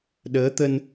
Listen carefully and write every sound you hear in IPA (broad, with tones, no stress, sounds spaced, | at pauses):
ɗ əː˨˦ t̪ ə˧ n